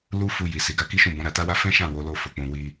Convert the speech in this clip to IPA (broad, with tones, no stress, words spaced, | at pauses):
lu˦ fu˧ji˨ si˨ɡa˨˦ ki˦ʃũ˦˨bɔ̃˨˦ ɾa˧ta˦wa˦ fɛ̃˦ʃã˦˨ wo˨˦lo˦˨fo˨k͡pũ˨ wi˧